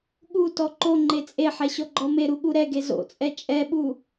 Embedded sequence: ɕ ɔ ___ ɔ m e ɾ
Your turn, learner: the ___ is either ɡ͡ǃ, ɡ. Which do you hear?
ɡ͡ǃ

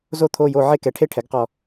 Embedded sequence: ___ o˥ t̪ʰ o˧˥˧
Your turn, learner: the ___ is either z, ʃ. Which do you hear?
z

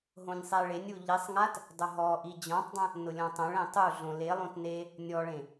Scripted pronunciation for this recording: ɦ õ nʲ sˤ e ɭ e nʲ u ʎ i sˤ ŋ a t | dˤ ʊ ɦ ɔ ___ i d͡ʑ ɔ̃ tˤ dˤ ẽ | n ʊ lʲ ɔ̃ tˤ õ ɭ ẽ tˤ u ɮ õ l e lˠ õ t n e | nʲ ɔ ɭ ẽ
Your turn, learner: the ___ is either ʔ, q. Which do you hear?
ʔ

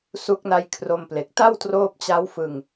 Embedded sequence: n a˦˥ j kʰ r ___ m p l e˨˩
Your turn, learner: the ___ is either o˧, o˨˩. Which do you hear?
o˧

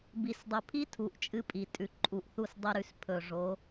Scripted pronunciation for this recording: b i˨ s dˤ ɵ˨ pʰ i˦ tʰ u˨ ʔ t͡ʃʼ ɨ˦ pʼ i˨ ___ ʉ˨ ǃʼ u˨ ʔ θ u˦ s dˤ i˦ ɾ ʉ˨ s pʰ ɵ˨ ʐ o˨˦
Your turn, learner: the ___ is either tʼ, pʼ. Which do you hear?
tʼ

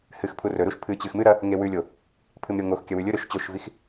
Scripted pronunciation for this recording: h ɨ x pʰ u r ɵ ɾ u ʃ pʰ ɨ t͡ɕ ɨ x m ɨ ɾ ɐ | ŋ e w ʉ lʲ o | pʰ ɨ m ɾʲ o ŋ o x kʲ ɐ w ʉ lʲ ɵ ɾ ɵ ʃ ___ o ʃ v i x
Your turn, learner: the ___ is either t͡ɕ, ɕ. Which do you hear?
t͡ɕ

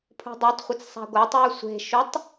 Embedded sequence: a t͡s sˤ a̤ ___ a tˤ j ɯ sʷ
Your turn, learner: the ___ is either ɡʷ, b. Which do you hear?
ɡʷ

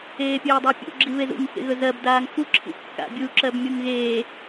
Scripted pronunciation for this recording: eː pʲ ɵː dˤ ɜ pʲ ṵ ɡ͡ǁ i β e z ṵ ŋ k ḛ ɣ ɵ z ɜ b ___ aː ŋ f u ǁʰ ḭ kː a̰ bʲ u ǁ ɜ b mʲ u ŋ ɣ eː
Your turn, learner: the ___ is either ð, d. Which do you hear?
d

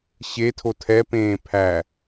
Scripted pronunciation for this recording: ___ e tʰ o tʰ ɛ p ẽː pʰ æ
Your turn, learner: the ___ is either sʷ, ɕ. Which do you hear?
ɕ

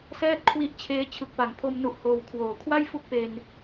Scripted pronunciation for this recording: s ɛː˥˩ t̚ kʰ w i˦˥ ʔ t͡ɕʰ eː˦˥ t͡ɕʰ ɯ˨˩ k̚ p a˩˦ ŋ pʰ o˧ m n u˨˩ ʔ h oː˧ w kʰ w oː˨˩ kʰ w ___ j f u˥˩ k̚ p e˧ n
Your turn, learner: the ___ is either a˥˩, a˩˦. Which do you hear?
a˥˩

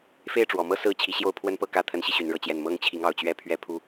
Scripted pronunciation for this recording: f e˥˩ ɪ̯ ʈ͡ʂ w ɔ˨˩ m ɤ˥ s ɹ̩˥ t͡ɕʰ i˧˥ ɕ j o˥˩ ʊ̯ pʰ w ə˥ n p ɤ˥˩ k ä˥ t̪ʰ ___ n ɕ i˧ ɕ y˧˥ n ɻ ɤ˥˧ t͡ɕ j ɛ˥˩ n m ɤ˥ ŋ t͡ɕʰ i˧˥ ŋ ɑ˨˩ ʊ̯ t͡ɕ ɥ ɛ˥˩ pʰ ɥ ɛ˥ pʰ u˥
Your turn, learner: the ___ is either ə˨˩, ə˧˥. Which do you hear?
ə˧˥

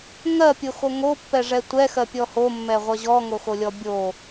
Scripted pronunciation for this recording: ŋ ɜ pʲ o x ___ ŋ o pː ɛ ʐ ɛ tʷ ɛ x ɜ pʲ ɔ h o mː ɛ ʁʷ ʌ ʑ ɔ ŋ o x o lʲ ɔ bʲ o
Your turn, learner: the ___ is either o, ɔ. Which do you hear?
o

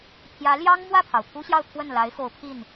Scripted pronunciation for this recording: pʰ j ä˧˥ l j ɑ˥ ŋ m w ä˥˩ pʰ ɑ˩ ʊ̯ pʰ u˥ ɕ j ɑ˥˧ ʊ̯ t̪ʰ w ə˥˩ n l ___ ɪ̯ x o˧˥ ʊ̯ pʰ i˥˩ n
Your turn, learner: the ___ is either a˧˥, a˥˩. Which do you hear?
a˧˥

